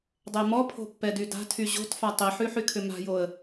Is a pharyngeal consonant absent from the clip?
no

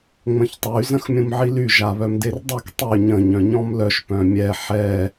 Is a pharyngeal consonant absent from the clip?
no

